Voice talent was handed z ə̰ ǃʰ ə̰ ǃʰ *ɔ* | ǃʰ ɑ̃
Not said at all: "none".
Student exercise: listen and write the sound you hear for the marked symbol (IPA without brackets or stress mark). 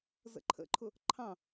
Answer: ʊ